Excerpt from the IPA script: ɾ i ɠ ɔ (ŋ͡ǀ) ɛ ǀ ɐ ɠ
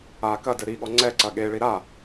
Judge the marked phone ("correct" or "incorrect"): correct